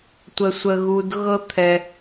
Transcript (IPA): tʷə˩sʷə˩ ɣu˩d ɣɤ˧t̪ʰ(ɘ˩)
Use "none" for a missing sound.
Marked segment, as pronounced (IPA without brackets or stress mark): ɛ˩